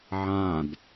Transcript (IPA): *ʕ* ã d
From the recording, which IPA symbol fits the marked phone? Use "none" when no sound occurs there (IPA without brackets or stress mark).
ʕ